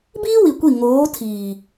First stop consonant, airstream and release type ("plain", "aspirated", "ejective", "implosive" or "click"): plain